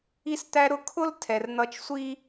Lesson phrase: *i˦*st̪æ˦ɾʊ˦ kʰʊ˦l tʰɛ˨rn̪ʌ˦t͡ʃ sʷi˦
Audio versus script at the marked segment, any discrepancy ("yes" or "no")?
no